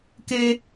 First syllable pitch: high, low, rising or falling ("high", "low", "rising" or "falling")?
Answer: high